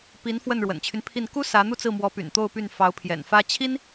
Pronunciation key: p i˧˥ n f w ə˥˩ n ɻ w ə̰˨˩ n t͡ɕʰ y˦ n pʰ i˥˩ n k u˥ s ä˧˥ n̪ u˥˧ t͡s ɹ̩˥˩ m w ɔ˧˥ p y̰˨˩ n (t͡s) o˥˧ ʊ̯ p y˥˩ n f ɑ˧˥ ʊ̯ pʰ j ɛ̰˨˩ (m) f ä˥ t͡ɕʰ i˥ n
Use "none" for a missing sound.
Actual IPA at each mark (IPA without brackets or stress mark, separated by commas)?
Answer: t̪, n